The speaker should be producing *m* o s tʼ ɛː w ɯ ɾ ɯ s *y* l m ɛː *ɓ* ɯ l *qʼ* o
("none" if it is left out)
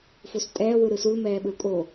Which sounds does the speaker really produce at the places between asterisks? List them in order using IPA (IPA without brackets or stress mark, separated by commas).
f, u, ɓ, kʼ